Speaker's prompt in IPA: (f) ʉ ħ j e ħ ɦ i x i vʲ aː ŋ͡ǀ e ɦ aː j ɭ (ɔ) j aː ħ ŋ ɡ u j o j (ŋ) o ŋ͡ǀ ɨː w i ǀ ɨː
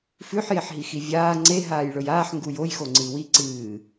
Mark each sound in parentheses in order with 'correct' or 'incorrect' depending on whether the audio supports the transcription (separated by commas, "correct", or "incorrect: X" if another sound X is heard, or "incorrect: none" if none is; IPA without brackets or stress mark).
correct, incorrect: ɵ, incorrect: x